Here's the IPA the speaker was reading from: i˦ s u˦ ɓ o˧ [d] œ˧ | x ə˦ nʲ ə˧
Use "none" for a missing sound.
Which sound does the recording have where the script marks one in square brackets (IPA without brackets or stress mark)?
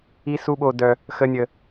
d